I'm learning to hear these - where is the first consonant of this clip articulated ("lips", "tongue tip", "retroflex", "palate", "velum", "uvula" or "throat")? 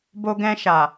lips